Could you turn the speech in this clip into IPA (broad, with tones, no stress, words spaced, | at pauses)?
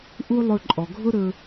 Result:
ʔu˥lˠɵ˧ ǃʼɔ˩ɡʱʊ˥ɾɵ˧